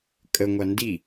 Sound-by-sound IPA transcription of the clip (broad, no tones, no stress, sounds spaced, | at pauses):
kʼ ə ŋʷ a n d i